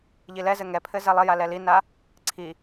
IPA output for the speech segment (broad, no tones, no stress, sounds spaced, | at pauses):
ʎ i l ɛ z ɘ ŋ ɛ pʰ ɘ z ɛ lˠ ɘ j a l ɛ l i n a | ǀʰ i